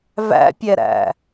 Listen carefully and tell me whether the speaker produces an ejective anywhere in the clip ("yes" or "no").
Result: no